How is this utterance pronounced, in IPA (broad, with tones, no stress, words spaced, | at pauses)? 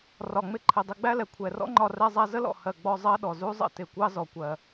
rɒ˨ŋ͡mɪ˧ ǃʰɪ˨dˤɪ˧ ɡ͡bæ˦lɛ˨ kʷʰɛ˨rɔ̰˦ŋ͡ǃɒ˧ rɛ˧zˤæ˧zə˦lɔ̰˨ hɜ˨ɡ͡bɔ˧ zˤɜ˦ɗɔ˨zu˦zˤə̰˦ tɪ˨kʷɑ˦ zɔ˨kʷɜ˨